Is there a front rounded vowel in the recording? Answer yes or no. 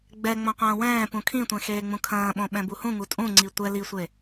no